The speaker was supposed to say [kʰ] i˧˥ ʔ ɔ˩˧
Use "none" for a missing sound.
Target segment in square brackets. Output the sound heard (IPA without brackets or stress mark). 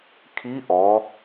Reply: kʰ